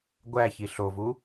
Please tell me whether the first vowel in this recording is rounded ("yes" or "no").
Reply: no